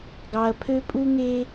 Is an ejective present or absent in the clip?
present